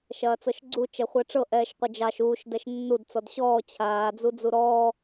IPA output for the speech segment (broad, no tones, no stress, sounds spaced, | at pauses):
ʃ ɐː t͡s ɤ ʃ ɡ͡ǀ u t͡ʃ ɛ χʷ ɛ ʈ͡ʂ ɤ ʔ ɛː ʃ qʷ ɘ d͡ʒ ɑ ʃ uː ʃ d ɛ ʃ nː u d t͡s ɔ d ɕ ɔː t͡ɕʰ aː d͡z u d͡z u ɾ ɔː